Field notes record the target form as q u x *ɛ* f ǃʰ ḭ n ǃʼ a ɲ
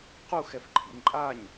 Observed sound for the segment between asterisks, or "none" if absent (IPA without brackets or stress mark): ɛ